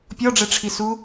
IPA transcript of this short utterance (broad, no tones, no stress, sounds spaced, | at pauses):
pʲ ɔ ɖ͡ʐ ɛ ʈ͡ʂʰ i s u